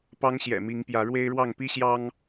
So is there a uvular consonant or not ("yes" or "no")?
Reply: no